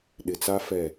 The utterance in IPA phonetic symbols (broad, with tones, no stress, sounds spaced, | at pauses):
ɗ ɪ˨ t͡s a˦ f ɛ˦˨